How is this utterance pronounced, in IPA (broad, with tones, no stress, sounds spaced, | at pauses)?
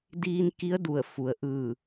d iː˧ n k i˧˥ ə̯ d u˧˩ ə̯ f u˩˧ ə̯ ʔ ɯː˧˩